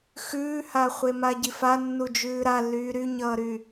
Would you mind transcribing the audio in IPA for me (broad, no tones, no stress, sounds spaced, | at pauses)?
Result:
x ʉː h a χʷ e m a ɟ i f a nː u d͡ʒ ʉː ɾ a lː yː ɾ y ɲ ʌː ɾ y